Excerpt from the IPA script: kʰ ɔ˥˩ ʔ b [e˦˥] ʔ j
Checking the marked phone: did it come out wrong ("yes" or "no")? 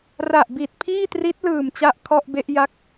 no